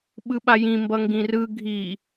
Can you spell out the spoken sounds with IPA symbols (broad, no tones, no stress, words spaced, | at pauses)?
ɓɯɓajĩ mbʌŋɡĩrɯ ɡʱi